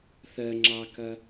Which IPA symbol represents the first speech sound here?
θ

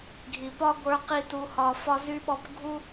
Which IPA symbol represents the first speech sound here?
ɡʱ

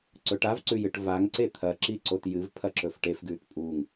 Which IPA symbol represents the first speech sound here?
ǀ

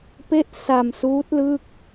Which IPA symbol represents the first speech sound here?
p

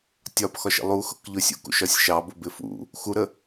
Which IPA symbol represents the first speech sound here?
tʲ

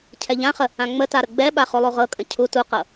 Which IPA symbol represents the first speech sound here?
cʰ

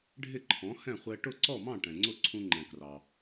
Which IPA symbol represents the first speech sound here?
ɖʱ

